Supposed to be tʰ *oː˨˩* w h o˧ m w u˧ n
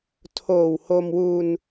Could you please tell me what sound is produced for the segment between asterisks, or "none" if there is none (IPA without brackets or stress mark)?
oː˨˩